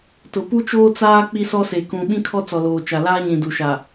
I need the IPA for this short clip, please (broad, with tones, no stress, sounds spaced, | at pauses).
t ʊ˨ p u˦ t͡ʃ oː˦ t͡s aː˦ k͡p i˦ s ɔ˦ s e˨ k ũ˨ ɓ ĩ˦ kʰ ɔ˦ t͡s ɔ˨ l oː˨ t͡ʃ a˨ l aː˦ ɲ ĩ˨ d u˨ ʃ a˨